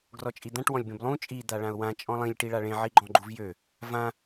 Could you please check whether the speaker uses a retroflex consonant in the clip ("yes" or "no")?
yes